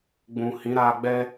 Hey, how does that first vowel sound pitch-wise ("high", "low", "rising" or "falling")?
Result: low